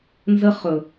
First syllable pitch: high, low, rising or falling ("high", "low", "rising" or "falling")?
high